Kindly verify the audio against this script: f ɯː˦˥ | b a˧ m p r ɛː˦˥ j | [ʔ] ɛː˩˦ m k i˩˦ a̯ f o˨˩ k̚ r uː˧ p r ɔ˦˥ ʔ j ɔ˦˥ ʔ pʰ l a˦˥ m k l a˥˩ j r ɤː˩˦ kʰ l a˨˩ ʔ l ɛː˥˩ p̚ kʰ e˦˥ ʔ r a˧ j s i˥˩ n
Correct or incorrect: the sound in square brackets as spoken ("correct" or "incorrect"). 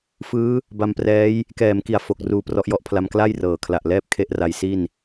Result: incorrect